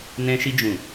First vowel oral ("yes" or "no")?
no